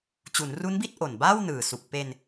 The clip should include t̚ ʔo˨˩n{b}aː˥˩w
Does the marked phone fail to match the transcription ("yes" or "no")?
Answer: no